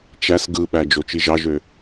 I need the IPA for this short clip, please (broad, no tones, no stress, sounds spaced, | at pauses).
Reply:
t͡ʃ æ s ɡ ɯ ɓ æ d͡ʒ o t͡ʃ i ʒ ɑ ʒ ø